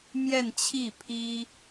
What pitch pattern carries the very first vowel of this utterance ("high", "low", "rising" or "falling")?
falling